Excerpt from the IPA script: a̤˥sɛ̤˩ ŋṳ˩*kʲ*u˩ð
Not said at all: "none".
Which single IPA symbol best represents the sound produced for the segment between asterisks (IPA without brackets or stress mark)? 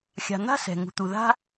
t̪